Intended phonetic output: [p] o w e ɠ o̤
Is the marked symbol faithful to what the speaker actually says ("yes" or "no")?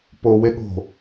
yes